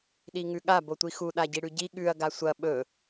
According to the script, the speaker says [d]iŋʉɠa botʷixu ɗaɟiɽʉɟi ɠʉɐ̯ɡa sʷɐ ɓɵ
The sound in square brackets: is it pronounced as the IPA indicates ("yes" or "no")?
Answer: no